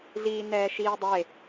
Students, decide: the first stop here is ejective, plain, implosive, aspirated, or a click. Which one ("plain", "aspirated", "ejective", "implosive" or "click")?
plain